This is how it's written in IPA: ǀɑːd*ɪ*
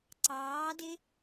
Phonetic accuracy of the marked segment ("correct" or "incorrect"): correct